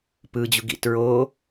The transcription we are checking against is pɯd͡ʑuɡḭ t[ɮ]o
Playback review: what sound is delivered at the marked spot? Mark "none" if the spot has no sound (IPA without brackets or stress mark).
ɹ